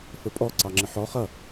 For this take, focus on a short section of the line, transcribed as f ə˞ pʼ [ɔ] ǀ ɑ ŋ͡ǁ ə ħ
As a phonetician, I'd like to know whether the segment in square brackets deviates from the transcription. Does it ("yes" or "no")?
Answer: no